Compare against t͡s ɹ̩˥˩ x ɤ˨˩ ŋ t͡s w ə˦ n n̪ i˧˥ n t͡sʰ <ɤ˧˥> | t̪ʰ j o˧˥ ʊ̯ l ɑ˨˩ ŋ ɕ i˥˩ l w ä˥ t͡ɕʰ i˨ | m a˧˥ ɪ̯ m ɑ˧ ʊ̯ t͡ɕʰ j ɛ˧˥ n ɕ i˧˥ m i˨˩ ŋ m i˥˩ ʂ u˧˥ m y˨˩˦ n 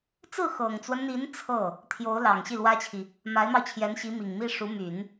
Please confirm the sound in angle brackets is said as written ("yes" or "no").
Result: no